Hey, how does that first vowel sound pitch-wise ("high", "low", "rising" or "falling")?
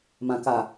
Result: low